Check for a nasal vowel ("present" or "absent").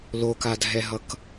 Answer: absent